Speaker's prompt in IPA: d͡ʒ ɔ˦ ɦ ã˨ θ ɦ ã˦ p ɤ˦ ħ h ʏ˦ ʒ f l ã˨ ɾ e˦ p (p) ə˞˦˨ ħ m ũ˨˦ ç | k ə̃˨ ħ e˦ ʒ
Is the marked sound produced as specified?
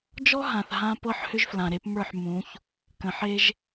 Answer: no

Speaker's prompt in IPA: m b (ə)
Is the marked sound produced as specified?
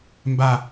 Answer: no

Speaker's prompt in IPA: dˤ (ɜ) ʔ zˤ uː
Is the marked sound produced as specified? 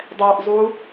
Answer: no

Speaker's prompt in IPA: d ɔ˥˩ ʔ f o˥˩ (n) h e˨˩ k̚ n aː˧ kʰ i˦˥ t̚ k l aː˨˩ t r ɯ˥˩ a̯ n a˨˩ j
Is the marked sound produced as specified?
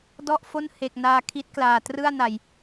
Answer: yes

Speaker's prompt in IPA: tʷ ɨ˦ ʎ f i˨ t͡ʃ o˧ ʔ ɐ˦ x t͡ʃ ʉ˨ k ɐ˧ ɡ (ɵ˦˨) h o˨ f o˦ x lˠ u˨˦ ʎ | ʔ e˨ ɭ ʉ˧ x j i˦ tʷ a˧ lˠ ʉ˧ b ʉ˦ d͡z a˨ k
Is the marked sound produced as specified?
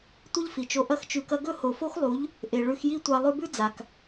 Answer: yes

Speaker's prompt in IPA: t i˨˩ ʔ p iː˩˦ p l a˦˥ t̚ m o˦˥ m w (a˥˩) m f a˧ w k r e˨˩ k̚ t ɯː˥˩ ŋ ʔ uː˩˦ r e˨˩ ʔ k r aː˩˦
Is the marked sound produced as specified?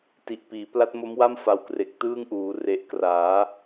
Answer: yes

